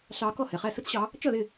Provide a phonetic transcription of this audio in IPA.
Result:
ɬ ɑ˨˦ k ɔ˥˩ h ɛ˩ χ æ˥˩ s ʊ˥ t͡s ɕ ɑ˨˦ | t͡ʃ ʌ˥˩ ð ɪ˥˩

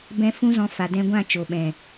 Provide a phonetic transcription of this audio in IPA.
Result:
b ɛ̃˧ f ũ˦ z ɔ̃˧ f a˨ d ɛ̃˦ ɡʷ ã˦˨ t͡ʃ o˨ ɓ ɛ̃˨

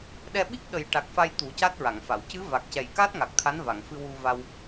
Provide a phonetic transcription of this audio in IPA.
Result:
ɗ ɛ˧ ɓ i˦˥ k̚ ɗ ə˨˩ j ʈ a˨˩ k̚ f a˧ j t̪ u˨˩˦ c a˦˥ t̚ ɹ a˨˩˨ ŋ f a˨˩˨ w c ɨ˧˥ v a˨˩ k̚ c ɛ˨˩ j k a˦˥ t̚ ŋ a˨˩ k̚ t̪ʰ a˧˥ n v a˨˩˨ ŋ f ɨ˧ w u˧ v a˧ w

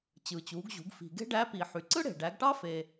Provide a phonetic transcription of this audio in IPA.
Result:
t͡ɕ ɯː˩ t͡ɕ uː˩˧ ɡ ʑ ṳ˩˧ ɡ f i̤˩ ɡ e̤˥ ɖ æ˧˥ p i˩ ħ y˩˧ ǀ ɯ˥ ɽ e̤˩ ɖ æ˩˧ ɡ ʈ ɑ˥ f eː˩

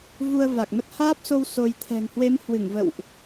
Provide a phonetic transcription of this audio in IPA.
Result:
v u˧ ə̯ v a˨˩ k̚ m ə˦˥ t̚ h aː˦˥ p̚ s o˧ w s o˧ j t̪ʰ ɛ̤˨˩ ŋ h w e˨˦ m h w ɨ˧˩ ŋ v ə̰˧˨ w ʔ

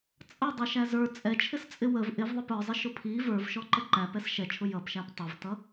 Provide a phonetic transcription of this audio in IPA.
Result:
t͡sʼ ʌ dˤ ɛ ʃ æ z ə˞ t͡sʼ ɛ t͡ʃʰ ɪ s t͡sʼ ɪ w ə v ʔ ɪ v ðˤ ɪ p ə˞ zˤ ɪ ʃ ʊ pʰ i v ə˞ v ʃ ɔ ǃ ə ǃ æ p ɛ s ʃ ɛ t͡ʃʰ ʊ j ʌ p ʃ æ p tˤ ə v t ʌ

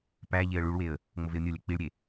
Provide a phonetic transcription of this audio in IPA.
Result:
p æ ʎ e ə̯ ɭ u ɭ w e ə̯ | ŋ͡m o v e ʊ̯ nʲ o lʲ æ k͡p i ɭ ɾʲ e

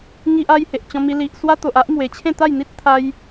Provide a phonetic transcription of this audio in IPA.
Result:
ŋ i˦ ʔ a˦ j h e˨ ʔ t͡ɕ ɔ̃˧ m i˧ l i˨ ʔ s w a˦ t̪ o˨ ʔ a˦ ʔ m w e˨˩ t͡ɕʰ ẽ˥˧ t̪ a˥˧ j n̪ i˦ t̚ t̪ʰ a˧ j

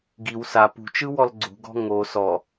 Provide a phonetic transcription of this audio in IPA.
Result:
ɡ i w s a p ṳ t͡ʃ ɯ w ɔ l ɡ͡ǀ ṳ ɡ ɔ̤ ŋ o s ɔ

